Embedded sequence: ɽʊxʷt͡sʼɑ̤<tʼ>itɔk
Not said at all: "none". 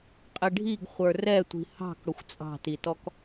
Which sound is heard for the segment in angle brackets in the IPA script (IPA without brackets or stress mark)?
t